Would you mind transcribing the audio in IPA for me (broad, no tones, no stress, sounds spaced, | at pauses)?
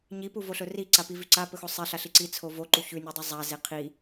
ɲ i p u v o ɬ ɵ r i ǀ a p i v ʉ ǀ a p ɵ x o sˤ e ɬ a ɬ i ǀ i t͡sʰ o v o ǃ u ç ʉ nʲ u dˤ i zˤ a z e qʰ i